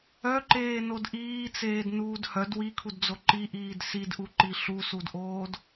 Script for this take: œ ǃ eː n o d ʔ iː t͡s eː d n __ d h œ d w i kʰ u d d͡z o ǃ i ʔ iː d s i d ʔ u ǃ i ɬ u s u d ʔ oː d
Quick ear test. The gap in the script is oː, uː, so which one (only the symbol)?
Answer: uː